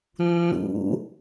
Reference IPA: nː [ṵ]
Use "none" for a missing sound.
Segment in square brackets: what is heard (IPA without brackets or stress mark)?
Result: ṵ